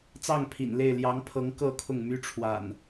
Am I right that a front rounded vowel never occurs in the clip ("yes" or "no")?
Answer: no